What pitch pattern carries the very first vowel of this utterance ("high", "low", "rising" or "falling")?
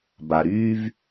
low